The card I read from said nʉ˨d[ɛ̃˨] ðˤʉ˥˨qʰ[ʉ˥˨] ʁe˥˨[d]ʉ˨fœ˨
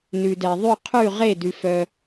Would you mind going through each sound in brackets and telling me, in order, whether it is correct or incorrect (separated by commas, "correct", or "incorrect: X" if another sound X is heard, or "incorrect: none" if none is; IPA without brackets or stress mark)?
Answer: incorrect: ɛ˨, correct, correct